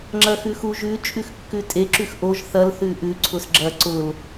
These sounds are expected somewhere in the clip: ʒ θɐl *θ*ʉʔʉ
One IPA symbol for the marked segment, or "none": θ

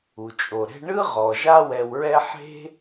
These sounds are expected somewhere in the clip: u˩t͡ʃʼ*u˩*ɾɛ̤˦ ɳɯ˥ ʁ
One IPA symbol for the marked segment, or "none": o˩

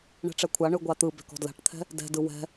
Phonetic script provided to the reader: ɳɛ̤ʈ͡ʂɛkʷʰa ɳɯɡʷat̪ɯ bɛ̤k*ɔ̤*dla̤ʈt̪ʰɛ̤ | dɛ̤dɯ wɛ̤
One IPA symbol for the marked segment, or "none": ɔ̤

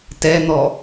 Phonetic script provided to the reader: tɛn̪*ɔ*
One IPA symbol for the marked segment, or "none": ɔ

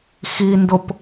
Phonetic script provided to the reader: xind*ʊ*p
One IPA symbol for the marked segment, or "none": ʊ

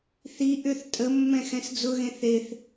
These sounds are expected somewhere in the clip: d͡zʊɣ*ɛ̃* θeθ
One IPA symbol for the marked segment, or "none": ẽ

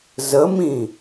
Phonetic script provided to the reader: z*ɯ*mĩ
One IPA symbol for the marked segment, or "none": ə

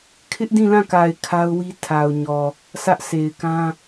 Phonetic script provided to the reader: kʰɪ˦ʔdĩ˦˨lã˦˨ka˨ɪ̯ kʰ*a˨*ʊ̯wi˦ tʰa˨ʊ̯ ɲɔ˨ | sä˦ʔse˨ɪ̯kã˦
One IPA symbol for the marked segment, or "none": a˦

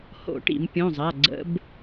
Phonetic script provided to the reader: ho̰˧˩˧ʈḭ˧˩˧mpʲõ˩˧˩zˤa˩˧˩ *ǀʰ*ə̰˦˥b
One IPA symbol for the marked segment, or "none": ɡ͡ǀ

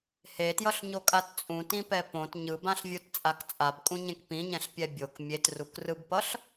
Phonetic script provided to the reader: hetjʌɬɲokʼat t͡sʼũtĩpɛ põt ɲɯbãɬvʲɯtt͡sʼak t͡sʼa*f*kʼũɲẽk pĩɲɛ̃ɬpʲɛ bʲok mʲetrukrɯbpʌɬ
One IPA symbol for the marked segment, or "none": b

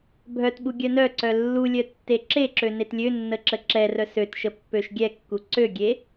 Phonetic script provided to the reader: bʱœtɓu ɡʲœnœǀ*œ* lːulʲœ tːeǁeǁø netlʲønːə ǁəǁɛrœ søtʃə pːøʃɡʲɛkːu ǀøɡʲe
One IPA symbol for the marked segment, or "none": œ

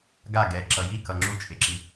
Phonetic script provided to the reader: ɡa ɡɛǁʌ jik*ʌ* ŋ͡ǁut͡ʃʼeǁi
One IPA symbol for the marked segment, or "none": ʌ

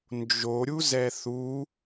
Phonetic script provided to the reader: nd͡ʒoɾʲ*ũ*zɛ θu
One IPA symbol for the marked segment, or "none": u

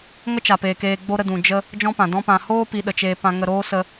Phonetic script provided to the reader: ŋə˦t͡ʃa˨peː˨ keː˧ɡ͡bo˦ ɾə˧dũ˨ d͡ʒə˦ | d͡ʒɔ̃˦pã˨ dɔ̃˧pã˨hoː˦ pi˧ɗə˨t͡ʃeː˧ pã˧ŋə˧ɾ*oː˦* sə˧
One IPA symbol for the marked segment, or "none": oː˦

